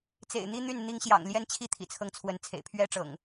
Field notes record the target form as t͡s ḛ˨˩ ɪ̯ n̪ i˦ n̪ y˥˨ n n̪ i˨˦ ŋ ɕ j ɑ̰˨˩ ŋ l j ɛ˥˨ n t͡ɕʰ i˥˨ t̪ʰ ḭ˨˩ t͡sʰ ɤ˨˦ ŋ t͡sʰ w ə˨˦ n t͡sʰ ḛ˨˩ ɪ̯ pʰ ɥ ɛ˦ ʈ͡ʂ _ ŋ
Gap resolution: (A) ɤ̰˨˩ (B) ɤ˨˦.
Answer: A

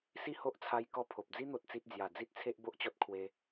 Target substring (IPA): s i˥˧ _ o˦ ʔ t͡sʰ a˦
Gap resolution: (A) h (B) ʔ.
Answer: A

